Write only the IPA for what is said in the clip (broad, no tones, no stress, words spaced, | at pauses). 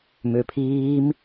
møpʰiːm